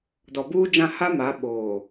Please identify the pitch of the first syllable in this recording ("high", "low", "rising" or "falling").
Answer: low